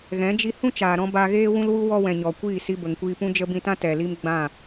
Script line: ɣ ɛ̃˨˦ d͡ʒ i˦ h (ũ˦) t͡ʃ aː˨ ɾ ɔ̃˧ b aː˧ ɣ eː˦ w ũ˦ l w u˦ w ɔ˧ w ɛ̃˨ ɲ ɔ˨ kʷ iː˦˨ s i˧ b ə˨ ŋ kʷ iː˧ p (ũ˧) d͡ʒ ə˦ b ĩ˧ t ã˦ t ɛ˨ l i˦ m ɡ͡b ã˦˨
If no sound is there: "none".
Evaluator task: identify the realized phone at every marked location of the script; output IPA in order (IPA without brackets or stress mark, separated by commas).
ũ˦, ũ˦